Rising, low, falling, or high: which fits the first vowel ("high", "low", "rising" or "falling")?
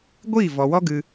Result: falling